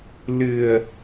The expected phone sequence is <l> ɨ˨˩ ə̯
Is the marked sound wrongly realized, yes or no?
no